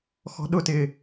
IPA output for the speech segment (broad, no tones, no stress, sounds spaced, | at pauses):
x ɔ̤ ɗ ʊ t ɪ